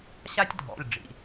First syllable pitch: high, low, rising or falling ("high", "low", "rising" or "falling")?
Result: high